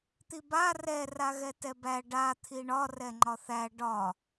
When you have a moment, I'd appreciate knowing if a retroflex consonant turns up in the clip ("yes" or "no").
yes